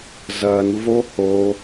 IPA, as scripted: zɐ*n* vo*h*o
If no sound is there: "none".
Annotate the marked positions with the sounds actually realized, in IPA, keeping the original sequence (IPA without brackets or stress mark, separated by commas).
n, h